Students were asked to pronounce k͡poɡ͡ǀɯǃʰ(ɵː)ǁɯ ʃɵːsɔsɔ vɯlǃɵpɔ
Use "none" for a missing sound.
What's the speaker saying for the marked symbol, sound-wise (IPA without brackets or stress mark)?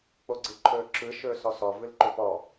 ɵː